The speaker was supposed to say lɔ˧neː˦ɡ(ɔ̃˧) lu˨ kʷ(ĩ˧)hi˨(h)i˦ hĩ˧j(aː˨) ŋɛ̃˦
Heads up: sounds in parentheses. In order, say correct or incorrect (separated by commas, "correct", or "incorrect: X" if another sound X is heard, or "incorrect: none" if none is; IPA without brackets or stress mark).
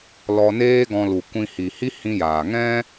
correct, correct, correct, correct